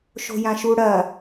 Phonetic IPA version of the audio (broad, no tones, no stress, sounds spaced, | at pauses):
ʃ o̤ j ã ʃ u ɽ ɐ